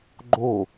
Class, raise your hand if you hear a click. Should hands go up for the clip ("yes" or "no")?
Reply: yes